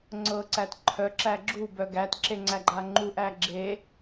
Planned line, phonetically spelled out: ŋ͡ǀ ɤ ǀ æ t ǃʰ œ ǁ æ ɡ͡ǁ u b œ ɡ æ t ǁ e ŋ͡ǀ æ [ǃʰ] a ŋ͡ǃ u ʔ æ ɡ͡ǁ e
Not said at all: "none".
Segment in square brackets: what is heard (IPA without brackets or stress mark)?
ɡ͡ǃ